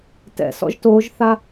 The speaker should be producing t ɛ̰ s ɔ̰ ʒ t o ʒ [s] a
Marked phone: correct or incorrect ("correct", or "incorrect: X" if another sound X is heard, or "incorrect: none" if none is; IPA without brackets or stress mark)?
incorrect: θ